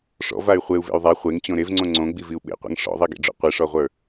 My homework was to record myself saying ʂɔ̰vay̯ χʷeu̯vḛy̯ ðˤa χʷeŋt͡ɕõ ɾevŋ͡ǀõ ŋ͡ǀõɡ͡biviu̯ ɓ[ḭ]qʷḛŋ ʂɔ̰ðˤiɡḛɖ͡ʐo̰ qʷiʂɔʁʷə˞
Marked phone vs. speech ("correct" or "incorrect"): incorrect